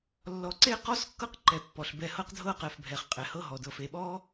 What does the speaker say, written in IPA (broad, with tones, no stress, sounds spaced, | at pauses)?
lː ɔ˧ ǀ e˥ q ɔ˥ s kː ɤ˥ q ǃ ɛ˧ pː ɔ˧ ɬ b ɛ˧ h ɤ˥ q dʱ ɤ˥ q ɛ˧ f bʱ ɛ˧ χ qʼ ɛ˧ h ɤ˥ ɦ ɔ˧ d ɤ˧ f e˧ ɓ ɔ˥